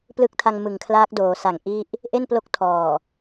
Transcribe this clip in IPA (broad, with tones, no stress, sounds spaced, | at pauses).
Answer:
p l ɯ˦˥ k̚ tʰ a˧ ŋ m ɯ˨˩ ŋ kʰ l aː˦˥ k̚ d oː˩˦ s a˨˩ ŋ ʔ i˥˩ ʔ | ʔ e˥˩ n p l o˦˥ k̚ tʰ ɔː˨˩